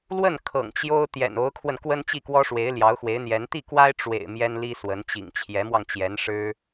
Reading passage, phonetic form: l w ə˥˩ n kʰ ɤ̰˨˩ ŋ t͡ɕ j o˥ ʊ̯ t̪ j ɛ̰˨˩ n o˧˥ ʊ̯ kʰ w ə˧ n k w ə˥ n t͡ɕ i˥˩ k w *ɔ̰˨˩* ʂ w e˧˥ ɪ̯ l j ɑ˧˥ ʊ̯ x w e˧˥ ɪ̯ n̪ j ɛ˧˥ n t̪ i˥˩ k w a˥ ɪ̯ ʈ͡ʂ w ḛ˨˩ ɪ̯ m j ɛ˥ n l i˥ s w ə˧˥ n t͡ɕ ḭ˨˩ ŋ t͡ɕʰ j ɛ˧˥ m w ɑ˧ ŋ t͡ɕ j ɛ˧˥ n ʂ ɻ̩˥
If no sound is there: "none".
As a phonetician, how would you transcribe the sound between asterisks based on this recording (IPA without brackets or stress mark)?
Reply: ɔ˥